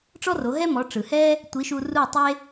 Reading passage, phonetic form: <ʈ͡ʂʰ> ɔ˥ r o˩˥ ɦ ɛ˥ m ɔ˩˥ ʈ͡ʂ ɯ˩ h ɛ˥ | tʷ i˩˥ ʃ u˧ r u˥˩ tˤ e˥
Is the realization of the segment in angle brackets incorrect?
yes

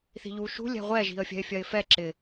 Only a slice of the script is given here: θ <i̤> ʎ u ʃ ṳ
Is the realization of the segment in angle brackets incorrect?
no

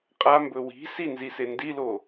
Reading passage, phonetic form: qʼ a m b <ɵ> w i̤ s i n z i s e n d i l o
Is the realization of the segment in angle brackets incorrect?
no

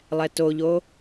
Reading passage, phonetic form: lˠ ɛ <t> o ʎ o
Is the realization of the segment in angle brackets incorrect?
no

